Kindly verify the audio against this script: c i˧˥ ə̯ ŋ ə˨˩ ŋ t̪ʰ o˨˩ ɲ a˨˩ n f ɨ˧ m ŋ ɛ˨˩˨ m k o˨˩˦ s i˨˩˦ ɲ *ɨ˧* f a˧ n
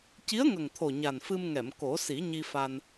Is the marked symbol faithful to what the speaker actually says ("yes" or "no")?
no